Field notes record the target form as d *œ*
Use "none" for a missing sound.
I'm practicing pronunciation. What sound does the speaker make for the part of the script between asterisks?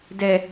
ɛ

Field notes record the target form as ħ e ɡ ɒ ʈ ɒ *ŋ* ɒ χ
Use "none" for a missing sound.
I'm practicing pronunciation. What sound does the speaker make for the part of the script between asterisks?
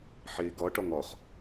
ŋ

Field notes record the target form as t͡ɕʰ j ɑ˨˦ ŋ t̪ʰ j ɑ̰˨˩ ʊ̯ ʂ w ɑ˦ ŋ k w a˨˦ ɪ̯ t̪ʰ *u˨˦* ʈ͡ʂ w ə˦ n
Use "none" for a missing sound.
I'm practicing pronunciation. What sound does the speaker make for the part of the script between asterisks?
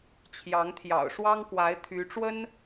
y˨˦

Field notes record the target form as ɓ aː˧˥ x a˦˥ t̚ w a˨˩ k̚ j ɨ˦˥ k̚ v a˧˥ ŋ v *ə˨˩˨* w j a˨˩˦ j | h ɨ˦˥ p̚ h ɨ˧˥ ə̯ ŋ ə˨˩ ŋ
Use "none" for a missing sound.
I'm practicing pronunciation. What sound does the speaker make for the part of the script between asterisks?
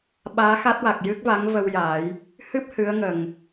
ə˧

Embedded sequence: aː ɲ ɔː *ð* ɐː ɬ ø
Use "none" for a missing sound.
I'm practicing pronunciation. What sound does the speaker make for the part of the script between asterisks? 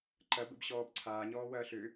w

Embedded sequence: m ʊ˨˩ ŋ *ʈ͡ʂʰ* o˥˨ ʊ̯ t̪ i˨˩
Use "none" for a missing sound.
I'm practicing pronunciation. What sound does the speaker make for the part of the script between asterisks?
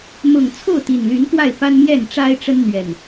t͡sʰ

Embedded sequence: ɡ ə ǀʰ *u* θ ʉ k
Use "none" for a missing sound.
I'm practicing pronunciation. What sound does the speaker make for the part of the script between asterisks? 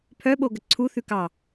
u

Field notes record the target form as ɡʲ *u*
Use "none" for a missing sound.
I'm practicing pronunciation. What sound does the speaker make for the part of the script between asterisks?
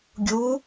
u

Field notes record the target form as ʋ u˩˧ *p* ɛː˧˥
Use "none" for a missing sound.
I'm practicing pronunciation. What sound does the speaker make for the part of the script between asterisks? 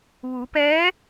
p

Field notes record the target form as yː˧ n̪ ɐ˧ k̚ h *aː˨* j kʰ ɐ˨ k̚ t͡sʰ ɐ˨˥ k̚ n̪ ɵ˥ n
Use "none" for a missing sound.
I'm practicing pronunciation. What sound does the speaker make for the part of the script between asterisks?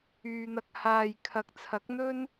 aː˨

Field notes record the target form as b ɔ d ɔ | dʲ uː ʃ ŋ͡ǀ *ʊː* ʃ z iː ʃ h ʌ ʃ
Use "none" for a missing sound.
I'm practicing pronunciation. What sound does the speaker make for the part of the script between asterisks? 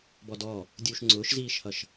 ʊː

